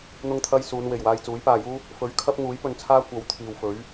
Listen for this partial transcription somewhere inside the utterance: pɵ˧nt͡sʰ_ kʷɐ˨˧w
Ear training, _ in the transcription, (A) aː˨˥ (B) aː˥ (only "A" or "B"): B